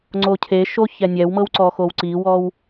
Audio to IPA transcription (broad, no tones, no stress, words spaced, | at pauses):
ŋ͡ǀocʰeʃo çɛnʲɛwmɤw ǀɔxowǀiwɔw